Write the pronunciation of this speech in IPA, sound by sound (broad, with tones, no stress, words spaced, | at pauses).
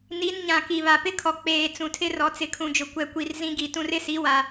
ni˨˦nɲã˨ ki˨βa˨pɪ˦kʰɔ˨ k͡peː˨ t͡sũ˨tʰɪ˦rɔ˨ t͡sɪ˨kʰũ˨d͡ʒʊ˨ kʷɛ˨kʷi˨r zĩ˦ɡi˨tũ˦r ɪ˦si˨˦ wa˨